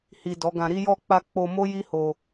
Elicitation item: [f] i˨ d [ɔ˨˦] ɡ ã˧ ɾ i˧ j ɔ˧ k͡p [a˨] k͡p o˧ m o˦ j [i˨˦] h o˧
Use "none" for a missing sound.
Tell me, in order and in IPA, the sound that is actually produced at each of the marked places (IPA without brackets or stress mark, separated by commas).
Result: h, ɔ˨˦, a˧, i˦